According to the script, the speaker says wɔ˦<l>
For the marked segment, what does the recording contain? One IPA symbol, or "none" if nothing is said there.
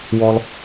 l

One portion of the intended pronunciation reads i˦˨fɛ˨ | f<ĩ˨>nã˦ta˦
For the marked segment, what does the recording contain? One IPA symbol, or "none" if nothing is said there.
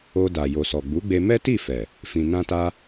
ĩ˧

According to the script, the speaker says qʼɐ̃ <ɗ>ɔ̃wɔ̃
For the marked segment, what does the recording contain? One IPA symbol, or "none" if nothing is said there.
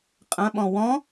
ɓ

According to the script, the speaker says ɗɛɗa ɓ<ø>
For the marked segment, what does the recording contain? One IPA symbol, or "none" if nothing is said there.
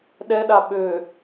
ø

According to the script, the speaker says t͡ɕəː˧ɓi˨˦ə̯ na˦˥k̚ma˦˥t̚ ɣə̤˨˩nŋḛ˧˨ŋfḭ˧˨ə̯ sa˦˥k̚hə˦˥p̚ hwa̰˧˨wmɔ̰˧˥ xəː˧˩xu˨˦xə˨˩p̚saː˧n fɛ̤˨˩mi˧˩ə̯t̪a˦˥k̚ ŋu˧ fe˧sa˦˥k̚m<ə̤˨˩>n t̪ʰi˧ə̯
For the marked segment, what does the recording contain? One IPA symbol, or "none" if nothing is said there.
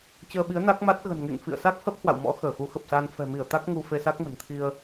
ə̤˨˩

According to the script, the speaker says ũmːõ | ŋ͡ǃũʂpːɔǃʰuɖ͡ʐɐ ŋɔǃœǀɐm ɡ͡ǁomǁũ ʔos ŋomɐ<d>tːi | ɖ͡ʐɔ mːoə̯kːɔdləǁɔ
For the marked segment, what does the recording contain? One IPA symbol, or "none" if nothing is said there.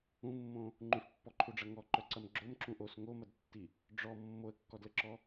d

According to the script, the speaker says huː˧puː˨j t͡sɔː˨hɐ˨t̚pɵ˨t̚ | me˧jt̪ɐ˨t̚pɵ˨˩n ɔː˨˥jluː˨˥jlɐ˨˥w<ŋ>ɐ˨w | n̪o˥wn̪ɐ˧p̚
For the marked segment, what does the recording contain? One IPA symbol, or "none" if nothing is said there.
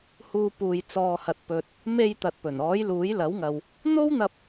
ŋ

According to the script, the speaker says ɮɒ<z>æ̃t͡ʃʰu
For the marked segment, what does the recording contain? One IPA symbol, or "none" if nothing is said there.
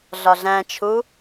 ɮ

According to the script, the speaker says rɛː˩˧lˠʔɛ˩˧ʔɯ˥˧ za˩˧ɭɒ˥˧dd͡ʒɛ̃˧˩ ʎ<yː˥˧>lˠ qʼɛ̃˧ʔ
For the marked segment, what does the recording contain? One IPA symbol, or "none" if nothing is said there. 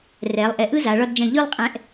y˥˧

